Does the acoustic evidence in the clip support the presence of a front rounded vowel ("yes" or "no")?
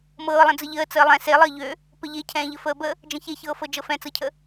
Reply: yes